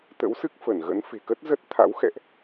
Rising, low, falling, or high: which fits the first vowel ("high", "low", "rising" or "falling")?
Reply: rising